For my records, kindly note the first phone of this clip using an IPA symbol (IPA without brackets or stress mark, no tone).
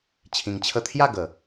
t͡ɕʰ